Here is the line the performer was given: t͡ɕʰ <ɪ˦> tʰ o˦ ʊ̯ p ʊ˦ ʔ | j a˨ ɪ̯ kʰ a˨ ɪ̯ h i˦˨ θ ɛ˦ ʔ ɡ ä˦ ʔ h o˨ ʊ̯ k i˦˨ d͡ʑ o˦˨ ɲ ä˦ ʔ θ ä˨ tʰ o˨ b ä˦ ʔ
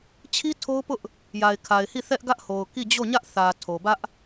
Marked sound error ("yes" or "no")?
yes